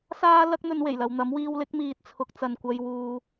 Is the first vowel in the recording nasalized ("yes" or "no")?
no